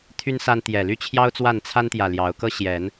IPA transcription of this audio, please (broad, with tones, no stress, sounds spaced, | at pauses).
t̪ʰ y˦ n s a˦ n t̪ j ɛ˨˩ l y˥˨ t͡ɕʰ j ɑ˦ ʊ̯ t͡s w a˥˨ n t͡sʰ a˦ n t̪ j ä˨ l j ɑ˨˦ ʊ̯ k ɤ˦ ɕ j ɛ˨˦ n